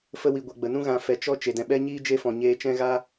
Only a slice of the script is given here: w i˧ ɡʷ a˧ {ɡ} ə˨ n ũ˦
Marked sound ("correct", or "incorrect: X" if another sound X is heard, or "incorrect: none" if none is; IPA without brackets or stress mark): incorrect: ɡ͡b